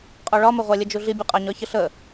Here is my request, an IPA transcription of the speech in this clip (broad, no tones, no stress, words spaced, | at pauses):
qʼɔɭɒməʁʷa lʲəd͡ʒuɮibʲu qʼaɲɒçəɬə